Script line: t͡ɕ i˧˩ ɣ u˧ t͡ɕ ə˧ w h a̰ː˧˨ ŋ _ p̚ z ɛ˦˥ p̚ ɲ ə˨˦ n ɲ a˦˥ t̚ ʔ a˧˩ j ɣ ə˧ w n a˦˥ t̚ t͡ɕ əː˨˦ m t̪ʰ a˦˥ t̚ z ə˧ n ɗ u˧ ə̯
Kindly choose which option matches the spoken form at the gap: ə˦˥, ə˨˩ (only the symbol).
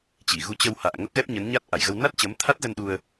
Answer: ə˦˥